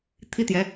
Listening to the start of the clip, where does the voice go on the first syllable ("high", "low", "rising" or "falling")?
high